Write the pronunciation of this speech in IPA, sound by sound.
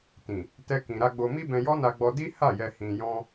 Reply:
t ĩ˨ | t ɛ˦ k ĩ˧ ɾ a˧ ɡ͡b o˧ m i˦ b ɛ̃˧ j ɔ˦ n a˧ ɡ͡b ɔ˧ d i˦ h a˦˨ j ɛ˧ h ĩ˧ j ɔ̃˦

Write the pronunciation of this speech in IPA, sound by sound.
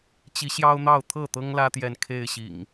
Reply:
t͡ɕ i˨˦ ɕ j ɑ˦ ʊ̯ n̪ ɑ˥˨ ʊ̯ t̪ʰ ɤ˥˨ t̪ ɤ˦ ŋ l ä˦ t̪ j ɛ˨ n kʰ e˥˨ ɪ̯ ɕ ḭ˨˩ ŋ

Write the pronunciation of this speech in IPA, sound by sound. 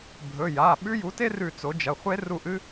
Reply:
bʱ ɵ˩˧˩ j a˩˧˩ ɓ ʉ˥ j u˩˥ t e˥ r ʉ˦˨ t͡s o˩˥ d͡ʒ ɐ˩˧˩ χʷ e˥ r u˦˨ ʔ ɨ˥

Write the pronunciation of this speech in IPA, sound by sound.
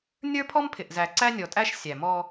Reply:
nʲ ə˞˦ pʰ ɔ˦ m pʰ ɪ˨ ʔ z æ˨ ǀ æ˦ nʲ ɔ˨ tʼ æ˦ ʃ sʲ æ˨ m ɔ˦

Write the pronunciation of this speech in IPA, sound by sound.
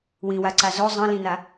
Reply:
w ĩ w a ǀ a z o zˤ ə̃ l ĩ n a

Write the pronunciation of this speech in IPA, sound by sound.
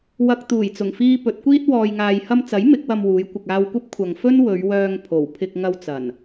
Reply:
w ɐ˧ k̚ t̪ uː˨˩ j t͡s ʊ˨˩ ŋ f iː˧ p ɵ˨˥ t̚ kʷ iː˥ t̚ w ɔː˨ j ŋ aː˨ j h ɐ˧ m t͡s ɐ˨˥ j m ɪ˨˥ k̚ w ɐ˧ m w uː˨˧ j kʷ ɪ˨ k̚ aː˧ w kʷ ɐ˥ p̚ kʷʰ ɐ˨ ŋ f ɵ˥ n w ɵ˨˧ ɥ w œː˧ ŋ pʰ o˨˩ w pʰ ɪ˧ k̚ ŋ ɐ˧ w t͡s ɐ˨˩ n

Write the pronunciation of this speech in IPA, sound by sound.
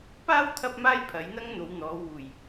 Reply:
p aː˥ w t̪ʰ ɐ˥ p̚ m aː˥ j pʰ ɐ˨˥ j n̪ ɐ˥ ŋ n̪ o˨˧ w n̪ ɔː˨˧ w uː˨˩ j

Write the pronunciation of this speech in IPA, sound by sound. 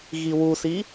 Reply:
ɣ i w u s i

